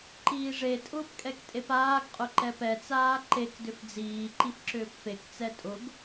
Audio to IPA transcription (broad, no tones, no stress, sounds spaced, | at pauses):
ǃ iː ʐ e tʼ ʊː p kʼ ɛ k tʼ e p aː ɡ qʼ ʊ ǃ ɛ p ɛ t͡s aː ǃ e k d ʏ f d͡z iː ǃ i f ǁ ʏː p f e k t͡s ɛ tʼ ʊ ɡ